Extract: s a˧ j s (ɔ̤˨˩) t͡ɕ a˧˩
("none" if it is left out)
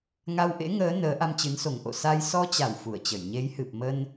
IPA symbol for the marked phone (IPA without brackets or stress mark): ɔ˧